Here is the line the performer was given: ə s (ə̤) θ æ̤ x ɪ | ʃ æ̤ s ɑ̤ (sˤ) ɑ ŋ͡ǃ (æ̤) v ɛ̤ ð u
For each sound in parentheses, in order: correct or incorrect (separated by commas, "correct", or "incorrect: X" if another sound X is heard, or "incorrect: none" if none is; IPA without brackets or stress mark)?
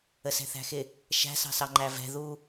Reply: incorrect: ɛ̤, incorrect: s, incorrect: æ